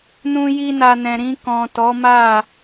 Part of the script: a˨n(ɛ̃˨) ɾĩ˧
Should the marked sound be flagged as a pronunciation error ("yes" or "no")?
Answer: no